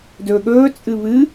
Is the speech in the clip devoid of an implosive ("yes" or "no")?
no